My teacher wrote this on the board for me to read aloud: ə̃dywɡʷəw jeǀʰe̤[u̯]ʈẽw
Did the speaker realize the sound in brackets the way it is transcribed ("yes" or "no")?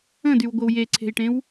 no